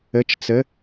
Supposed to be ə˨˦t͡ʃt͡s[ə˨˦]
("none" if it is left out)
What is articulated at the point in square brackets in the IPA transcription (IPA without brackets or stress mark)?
ə˨˦